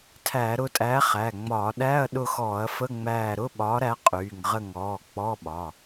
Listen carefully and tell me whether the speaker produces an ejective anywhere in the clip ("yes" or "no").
yes